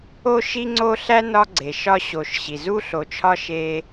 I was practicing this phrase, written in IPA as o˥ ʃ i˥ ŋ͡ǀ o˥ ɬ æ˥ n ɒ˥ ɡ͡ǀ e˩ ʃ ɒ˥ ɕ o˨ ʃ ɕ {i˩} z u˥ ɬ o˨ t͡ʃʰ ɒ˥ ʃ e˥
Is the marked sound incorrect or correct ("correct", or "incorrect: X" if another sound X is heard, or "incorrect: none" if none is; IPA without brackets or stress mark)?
correct